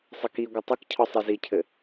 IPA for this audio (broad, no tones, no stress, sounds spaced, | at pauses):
sˤ ɘ k i ɡʷ ɐ tˤ ɘ k cʰ ɔ sˤ i z i cʰ ɘ